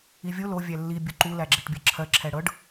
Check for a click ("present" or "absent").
present